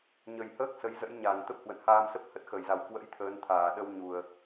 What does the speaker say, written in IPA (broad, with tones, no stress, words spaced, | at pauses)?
ɲə˨˩jhəː˦˥k̚ sə˨˦jzə̰˧˥jɲa˨˩nt̪ə˦˥p̚ hwə̰˧˨nhaː˧m sə˦˥p̚hə˦˥t̚xə˨˩j za˨˩wkwə̰˧˥j t̪ʰəː˨˦nt̪ʰaː˨˩ ɗə˧wɲu˨˩ə̯